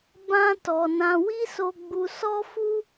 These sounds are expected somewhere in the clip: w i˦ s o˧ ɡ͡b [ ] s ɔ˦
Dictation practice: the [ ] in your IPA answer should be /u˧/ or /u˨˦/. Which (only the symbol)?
u˧